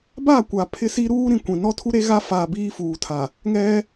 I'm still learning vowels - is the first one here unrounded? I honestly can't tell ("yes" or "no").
yes